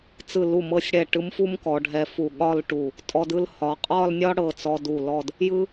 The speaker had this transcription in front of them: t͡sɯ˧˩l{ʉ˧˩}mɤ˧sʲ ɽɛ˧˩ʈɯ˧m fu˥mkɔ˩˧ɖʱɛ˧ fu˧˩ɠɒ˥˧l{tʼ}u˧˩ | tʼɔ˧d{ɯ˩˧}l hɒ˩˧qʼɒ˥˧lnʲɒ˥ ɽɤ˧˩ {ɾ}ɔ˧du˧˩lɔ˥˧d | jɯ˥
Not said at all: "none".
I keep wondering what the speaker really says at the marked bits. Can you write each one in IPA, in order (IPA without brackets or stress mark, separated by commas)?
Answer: u˧˩, ʈ, ɯ˥˧, t͡s